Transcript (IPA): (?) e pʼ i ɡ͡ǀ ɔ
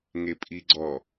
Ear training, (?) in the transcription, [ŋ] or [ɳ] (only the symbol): ŋ